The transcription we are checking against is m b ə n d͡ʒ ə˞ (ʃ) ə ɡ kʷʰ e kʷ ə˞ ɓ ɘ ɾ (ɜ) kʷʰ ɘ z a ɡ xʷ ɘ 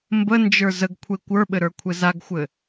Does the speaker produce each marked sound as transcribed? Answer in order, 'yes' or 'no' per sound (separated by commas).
no, no